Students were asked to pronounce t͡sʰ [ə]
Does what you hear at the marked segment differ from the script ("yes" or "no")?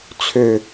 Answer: yes